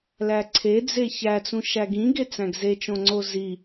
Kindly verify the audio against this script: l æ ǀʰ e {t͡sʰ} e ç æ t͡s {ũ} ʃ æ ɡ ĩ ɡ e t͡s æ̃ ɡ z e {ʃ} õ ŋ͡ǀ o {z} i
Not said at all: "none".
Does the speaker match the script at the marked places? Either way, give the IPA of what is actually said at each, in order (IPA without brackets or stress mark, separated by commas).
d͡z, ũ, t͡ʃ, z